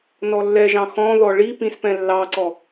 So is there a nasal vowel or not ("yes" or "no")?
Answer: yes